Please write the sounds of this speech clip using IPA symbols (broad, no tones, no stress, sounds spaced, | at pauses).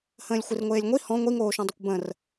h ə̃ː lʲ xʷ ɪ r ŋʷ eː lʲ ŋʷ i h ɔ̃ ŋʷ i ŋ oː ʃ ɔ̃ dˤ ɪ kʷ b ə̃ r